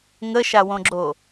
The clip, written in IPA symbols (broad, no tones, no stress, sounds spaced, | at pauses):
ŋ ə ʃ a w õ ɡ͡ǁ o